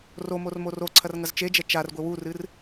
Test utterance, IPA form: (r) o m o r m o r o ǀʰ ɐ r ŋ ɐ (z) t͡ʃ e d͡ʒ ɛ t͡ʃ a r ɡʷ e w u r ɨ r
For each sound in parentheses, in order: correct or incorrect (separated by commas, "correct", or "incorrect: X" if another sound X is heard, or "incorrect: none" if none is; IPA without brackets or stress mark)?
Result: correct, correct